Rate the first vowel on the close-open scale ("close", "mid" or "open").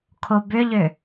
mid